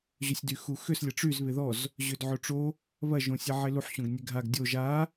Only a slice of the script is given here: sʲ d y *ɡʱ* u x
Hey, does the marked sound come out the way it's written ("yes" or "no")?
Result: no